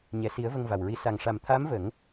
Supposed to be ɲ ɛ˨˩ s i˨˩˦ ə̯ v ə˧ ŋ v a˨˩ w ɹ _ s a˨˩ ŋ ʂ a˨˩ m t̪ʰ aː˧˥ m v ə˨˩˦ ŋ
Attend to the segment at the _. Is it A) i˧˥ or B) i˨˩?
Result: A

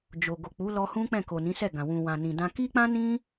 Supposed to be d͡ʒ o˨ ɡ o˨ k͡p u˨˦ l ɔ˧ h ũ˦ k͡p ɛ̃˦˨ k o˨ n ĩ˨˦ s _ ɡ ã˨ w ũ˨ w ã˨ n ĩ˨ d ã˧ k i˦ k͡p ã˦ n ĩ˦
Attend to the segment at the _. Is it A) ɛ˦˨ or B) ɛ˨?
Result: A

